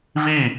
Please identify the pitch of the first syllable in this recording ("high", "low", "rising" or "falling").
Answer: falling